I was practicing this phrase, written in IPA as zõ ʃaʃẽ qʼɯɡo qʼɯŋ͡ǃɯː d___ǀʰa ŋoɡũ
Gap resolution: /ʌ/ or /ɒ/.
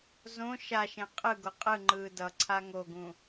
ʌ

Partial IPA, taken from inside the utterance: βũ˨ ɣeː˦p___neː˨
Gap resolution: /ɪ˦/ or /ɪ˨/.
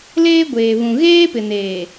ɪ˨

